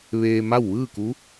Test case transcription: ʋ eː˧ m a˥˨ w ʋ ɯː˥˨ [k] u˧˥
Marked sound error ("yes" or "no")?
no